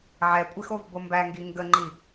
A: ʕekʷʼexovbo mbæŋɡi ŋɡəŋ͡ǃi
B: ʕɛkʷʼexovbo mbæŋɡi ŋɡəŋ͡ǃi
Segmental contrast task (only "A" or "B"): B